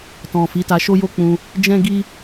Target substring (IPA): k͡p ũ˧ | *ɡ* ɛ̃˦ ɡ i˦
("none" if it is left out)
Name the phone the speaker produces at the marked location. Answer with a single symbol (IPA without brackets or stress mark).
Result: d͡ʒ